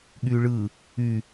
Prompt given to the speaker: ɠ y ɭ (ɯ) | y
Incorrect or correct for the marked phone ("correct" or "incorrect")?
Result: correct